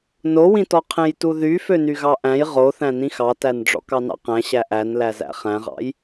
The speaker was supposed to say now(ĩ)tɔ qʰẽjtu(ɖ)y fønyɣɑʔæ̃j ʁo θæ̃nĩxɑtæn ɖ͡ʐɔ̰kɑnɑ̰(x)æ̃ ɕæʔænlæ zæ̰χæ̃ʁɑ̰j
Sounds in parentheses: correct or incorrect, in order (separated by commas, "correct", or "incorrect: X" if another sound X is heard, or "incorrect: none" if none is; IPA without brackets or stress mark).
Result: correct, incorrect: ð, incorrect: q